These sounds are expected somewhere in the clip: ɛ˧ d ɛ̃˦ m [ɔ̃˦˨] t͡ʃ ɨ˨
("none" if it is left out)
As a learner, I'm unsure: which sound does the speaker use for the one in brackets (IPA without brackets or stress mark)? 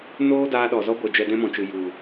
ɔ̃˨